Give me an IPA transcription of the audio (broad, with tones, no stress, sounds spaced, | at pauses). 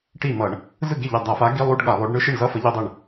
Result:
ʈ i˥˩ m ʌ˧˩˧ ɳ | z ɯ˥˩ ɡ e˥˩ ʎ ɛ˧˩ dˤ a˧˩˧ f a˨˥ ɡ i˧˥˧ lˠ u˧˥˧ ɖ ɠ a˧˩˧ lˠ o˨˥ ɖ ɳ ɯ˧˥˧ ʃ e˥˩ ɳ z ʌ˧˥˧ f ʌ˨˥ ʎ i˧˥˧ dˤ ɯ˥˩ ɳ